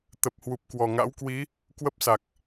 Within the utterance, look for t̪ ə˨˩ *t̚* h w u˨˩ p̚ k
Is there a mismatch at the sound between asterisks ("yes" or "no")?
yes